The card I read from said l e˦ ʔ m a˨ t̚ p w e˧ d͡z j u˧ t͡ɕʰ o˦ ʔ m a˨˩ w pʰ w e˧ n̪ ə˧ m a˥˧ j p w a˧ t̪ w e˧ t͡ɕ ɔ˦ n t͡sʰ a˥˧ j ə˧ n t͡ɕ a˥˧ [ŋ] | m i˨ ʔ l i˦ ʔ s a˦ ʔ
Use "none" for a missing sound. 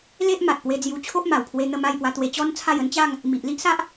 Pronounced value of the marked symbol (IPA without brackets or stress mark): ŋ